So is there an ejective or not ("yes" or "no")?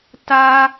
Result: no